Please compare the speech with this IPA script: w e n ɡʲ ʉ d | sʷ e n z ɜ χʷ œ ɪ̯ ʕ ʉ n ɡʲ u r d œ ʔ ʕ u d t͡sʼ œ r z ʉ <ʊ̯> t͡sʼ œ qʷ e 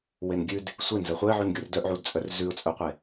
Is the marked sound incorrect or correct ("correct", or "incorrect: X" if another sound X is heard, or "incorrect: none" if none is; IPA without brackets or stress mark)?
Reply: correct